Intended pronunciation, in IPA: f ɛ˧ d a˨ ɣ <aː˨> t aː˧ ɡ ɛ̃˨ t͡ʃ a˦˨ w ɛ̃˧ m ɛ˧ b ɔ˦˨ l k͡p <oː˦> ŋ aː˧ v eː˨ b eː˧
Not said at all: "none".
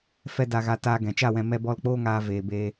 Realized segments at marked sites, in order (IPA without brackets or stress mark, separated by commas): a˨, oː˦